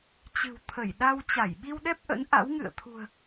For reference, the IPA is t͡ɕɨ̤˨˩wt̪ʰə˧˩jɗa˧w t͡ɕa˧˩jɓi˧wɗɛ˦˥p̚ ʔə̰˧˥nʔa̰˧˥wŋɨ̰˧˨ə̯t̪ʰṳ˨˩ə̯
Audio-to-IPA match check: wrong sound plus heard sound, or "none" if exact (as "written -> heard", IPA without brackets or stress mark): none